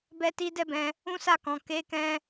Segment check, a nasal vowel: present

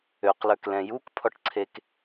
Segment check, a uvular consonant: present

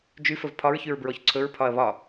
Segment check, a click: present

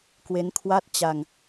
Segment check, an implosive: absent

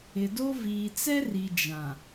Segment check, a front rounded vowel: absent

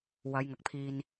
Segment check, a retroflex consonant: absent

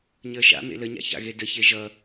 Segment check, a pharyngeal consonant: absent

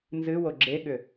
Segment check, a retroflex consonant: absent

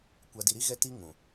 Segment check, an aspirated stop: absent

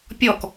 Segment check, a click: absent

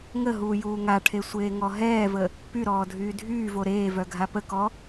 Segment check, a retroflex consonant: present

